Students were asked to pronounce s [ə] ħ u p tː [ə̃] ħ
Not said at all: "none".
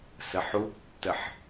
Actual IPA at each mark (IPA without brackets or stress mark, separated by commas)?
ə, ə